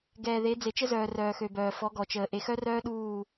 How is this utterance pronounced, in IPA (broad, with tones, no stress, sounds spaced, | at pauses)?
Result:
ɡ ɛː˨ ð e˨˦ d͡z e˨ t͡ʃ ə˦ z œː˨ r œː˨ x ø˨ b œː˨ f ɔ˨˦ ɡ ɔ˨ t͡ʃ əː˨ ʔ e˨ x œ˦ r œː˦ ɗ uː˦˨